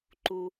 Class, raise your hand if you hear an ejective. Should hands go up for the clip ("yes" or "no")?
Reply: no